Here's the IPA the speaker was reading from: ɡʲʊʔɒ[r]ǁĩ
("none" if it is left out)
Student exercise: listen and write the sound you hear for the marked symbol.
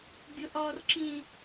r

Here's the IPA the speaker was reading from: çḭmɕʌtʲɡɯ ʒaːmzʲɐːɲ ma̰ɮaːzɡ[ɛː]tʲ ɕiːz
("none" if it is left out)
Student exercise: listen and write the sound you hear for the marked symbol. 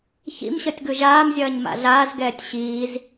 ɛː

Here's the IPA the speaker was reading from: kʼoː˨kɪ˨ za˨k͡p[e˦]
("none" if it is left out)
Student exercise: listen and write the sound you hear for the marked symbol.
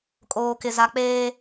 eː˦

